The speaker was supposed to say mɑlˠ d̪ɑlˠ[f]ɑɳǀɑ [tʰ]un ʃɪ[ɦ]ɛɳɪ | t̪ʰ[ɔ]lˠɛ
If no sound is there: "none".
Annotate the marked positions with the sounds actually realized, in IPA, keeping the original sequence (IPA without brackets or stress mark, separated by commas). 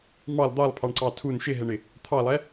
pʰ, tʰ, ɦ, ɑ